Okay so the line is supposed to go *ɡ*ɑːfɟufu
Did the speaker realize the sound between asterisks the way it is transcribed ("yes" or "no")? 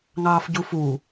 no